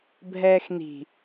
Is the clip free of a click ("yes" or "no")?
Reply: yes